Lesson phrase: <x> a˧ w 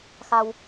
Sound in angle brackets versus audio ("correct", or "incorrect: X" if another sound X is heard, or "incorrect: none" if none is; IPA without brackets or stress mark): correct